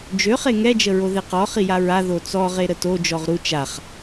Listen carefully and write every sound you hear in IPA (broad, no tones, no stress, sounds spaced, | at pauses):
d͡ʒ ø χ e ŋ ɛ d͡ʒ ə ɹ o ð e q ɔ χ i j a ɹ a ð o t͡s ɔ ʁ e ɾ ə t o d͡ʒ ɔ ʁ ɾ u t͡ʃ a χ